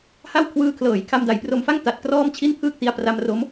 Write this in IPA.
ha˥˩wkʰwɯː˦˥kʰlɤː˩˦j kʰa˧mda˩˦jpro˧mfa˥˩ŋ ta˨˩t̚krɔː˥˩mt͡ɕʰi˥˩n pʰɯː˥˩k̚ti˧a̯ pra˧m ro˦˥m

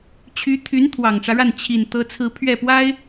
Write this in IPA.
t͡ɕʰy˧˥t̪ʰy˧˥n t̪ʰwɑ˨˩ŋʈ͡ʂä˦ɻa˥˩n t͡ɕʰi˨˩n t̪ɤ˥t͡sʰɹ̩˥ pʰɥɛ˥˩pwa˥ɪ̯

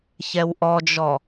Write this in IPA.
çɛwʔɔd͡ʒɔ

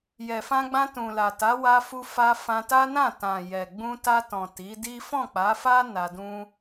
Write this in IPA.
jɛ˨fã˧ɡ͡bã˧ tũ˨la˨ta˨˦ wa˧fu˧fa˧ fã˧ta˦nã˦˨ tã˨jɛ˨ɡ͡bũ˧ ta˧tɔ̃˨ ti˨˦di˦ fɔ̃˦˨k͡pa˨˦fa˦ na˧dũ˦

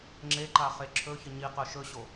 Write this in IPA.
ŋ͡ǁeǃa χeǁʰɵçə ɲiqɵ ʃɵɕo

